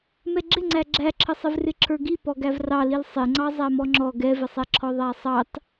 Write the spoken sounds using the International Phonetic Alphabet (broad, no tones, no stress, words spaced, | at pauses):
mɛɡ͡ǁɪŋ͡ǀæ ɡ͡ǁæǁʰəsˤɪvrɪ ǁʰə˞ɡi pɔɡævrɑlil sˤɪŋ͡ǀɑ zˤæmɔŋ͡ǁɔ ɡɛvɪsˤɛǁʰɔ ðˤæsˤɑt